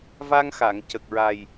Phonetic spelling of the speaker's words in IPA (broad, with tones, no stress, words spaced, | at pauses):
va˧ŋ xa˨˩˨ŋcə˨˩k̚ɹa˨˩j